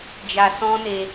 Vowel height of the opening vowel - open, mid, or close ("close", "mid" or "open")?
open